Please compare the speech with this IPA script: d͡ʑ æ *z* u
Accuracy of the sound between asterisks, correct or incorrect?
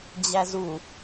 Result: correct